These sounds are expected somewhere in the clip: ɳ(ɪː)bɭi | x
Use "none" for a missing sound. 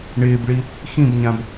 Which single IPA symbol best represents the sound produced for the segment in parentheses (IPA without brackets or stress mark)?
ɪː